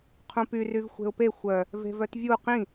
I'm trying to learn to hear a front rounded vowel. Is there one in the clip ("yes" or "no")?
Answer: yes